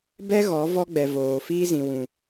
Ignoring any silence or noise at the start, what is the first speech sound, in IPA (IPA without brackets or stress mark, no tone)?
b